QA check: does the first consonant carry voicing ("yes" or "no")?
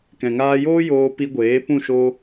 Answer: no